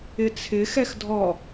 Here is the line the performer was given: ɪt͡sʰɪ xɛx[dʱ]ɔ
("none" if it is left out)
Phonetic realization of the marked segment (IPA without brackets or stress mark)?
dʱ